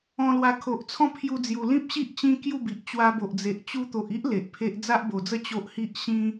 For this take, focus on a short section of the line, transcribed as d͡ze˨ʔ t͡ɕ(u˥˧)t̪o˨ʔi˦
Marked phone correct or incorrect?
incorrect